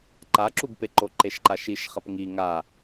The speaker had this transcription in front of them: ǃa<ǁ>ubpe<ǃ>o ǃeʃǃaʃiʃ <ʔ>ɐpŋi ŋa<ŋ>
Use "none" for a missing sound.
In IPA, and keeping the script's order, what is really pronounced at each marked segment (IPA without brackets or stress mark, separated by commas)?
ǁ, ǃ, χ, none